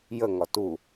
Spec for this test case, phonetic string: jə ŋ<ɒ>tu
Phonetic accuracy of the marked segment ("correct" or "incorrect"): correct